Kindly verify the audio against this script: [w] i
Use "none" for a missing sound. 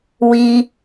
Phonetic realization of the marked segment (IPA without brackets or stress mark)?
w